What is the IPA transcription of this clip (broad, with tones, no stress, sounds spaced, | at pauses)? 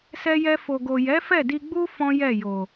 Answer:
s ɛ˧ j ɛ˧ f o˨ ɡ o˨ j ɛ˨˦ f ɛ˦˨ d i˧ ɡ͡b u˦ f ɔ̃˦ j ɛ˦˨ j o˨